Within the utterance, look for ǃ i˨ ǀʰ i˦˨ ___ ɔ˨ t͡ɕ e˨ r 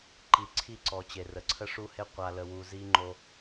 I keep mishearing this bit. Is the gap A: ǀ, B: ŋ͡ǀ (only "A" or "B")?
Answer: A